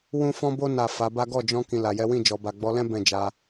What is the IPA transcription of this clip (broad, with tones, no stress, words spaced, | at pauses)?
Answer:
wũ˦fɔ̃˦bo˦ na˦˨ fa˨˦ba˦ ɡɔ˦˨d͡ʒɔ̃˧ kĩ˨ la˨jɛ˨˦wĩ˦˨ d͡ʒɔ˨ba˨ɡ͡bɔ˨˦lɛ̃˦ bɛ̃˦˨d͡ʒa˧